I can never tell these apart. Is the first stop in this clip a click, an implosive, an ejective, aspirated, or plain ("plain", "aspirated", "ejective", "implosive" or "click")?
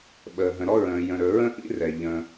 implosive